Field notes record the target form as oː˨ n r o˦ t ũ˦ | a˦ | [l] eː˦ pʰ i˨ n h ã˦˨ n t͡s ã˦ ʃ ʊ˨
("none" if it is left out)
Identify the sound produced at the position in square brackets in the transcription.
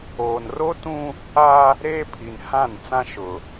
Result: ɾ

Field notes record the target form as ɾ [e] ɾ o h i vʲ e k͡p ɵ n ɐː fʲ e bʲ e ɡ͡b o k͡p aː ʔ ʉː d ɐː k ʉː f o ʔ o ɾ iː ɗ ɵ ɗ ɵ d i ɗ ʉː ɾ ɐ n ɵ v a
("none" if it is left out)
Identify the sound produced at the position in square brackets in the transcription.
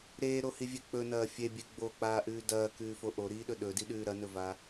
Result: eː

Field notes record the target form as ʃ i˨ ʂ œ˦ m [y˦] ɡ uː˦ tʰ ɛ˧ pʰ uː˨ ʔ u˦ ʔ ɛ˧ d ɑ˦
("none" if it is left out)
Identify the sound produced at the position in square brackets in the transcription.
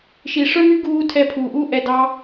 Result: y˦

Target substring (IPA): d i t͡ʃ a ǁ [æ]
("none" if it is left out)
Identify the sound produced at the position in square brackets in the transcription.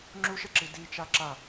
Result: a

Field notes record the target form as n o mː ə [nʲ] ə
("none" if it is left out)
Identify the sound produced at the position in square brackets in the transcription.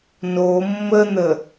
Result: n̪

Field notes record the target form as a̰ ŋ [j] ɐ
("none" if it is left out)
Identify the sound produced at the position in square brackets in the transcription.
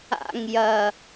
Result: j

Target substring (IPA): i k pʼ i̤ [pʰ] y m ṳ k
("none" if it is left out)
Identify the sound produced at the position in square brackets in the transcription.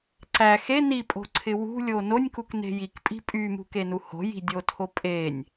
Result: pʼ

